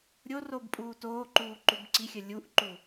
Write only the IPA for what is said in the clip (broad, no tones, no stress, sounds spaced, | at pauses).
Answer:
ɾʲ o r o b pʼ uː t oː ǃ uː ǃ u b ǀ i xʲ ə lʲ u ʔ ǃ u